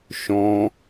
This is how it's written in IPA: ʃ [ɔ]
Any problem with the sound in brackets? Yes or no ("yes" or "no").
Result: yes